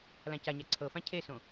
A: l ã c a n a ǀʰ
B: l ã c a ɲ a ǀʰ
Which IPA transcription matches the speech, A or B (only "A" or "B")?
B